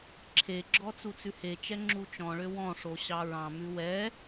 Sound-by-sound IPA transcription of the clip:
ǁʰ e ɡ͡ǁ ɔ t͡s u t͡s ʉ h e t͡ʃ ɛ ŋ͡ǁ u t͡ʃ ɔ̃ ɭ ø w ɔ̃ ʂ o ɕ ɑ ɹ ɑ̃ m ʉ w ɛ

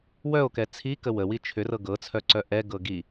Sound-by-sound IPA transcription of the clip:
w œ o̯ k ɛ t͡sʰ i k ə w ə w i t͡ʃʰ ʏ r ɤ ɡ ɤ t͡sʰ œ ǀ œ ʔ ɛ ɡ ɤ ɡ i

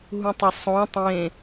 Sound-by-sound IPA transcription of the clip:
ɦ ũ tˤ ʌ sˤ õ tˤ ẽ

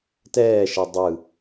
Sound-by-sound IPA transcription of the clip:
t ɛː ʃ ɛ dˤ ɯ

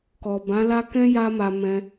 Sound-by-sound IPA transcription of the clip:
k ɔ˨ b ã˨˦ l a˦ k ɛ̃˦ j a˧ m a˨ m ɛ̃˧

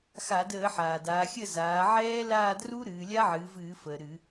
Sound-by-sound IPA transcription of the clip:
x a˧˩˧ d əː˧˩˧ ħ aː˩ d aː˩˧ xʲ ə˦˨ z aː˩˧ ʕ ɛː˦˥ l aː˦˨ d r u˦˥ ɾ ɨː˩˧ lʲ a˦˥ ʕ ɨː˩˧ v ɨː˧˩˧ f əː˩ ɾ ɨ˧˩˧

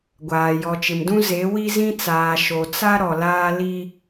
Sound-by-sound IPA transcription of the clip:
ɡʷ aː˨ j ɔ˨ t͡ʃ ɪ˨ m d ũ˦ z e˨˦ w i˦ z ĩ˦ t͡s aː˨ ʃ o˨ t͡s a˦ ɾ ɔ˨ l aː˦ l i˦

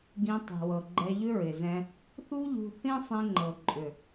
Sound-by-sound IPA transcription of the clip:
ɡ ĩ˧ tˤ i̤˨ w ɤ˨ ɡ͡ǃ ɛ˧ ʎ ʏ˦ ɹ ɪ˨ z ɛ̃˧ | θ u˦ ʎ ṳ˧ θ ĩ˦ sˤ ĩ˧ ŋ͡ǃ ɤ˨ ǃʼ ʏ˨

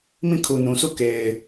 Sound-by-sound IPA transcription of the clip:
m ĩ˦˨ kʰ u˨ n ũ˨ sʰ u˦˨ k e˨ ɪ̯

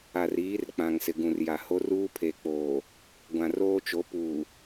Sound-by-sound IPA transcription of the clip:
a˨ r iː˨˦ r k͡p ã˨ ŋ s ɪ˨ ɡ ũ˨ r j a˨ h o˦ r uː˦ pʰ e˨ k͡p oː˨ | ɡʷ ã˨ r oː˦ t͡ʃ o˨˦ p uː˨

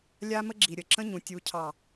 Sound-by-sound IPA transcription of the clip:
lʲ a˦ m ə˦ ɡ͡ǁ i˨ ɾʲ ə˨ ǁ ə̃˦ ɲ ũ˨ tʲ u˨ cʰ ɑ˨

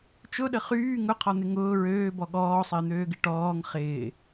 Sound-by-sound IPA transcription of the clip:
t͡ʃ ʊ ɗ ə χ yː ŋ ʊ qʰ ɔ n̪ ɪ ŋ ʊː ɹ øː b ɔ ɠ ɔː sˤ ɪː n̪ øː ɡ ɪ ʈ ɔː ŋ χ ɪː

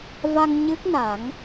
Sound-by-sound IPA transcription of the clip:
v a˧ ŋ ɲ ɨ˦˥ k̚ n a˨˩˦ ŋ

